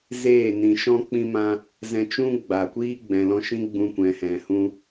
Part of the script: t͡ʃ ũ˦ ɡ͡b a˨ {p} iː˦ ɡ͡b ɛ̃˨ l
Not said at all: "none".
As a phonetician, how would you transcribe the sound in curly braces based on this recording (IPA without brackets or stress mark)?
kʷ